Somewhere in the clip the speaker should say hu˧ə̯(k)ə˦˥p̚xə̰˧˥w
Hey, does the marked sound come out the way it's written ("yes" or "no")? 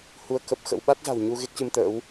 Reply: yes